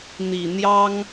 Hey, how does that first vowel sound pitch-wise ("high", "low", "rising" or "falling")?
low